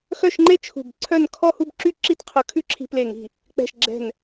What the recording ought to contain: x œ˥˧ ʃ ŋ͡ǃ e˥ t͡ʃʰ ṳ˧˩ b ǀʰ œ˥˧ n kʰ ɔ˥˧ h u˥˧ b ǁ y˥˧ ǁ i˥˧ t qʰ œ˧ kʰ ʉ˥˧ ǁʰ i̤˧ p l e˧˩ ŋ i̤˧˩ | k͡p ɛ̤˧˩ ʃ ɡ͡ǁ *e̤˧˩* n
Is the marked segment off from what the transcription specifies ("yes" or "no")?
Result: yes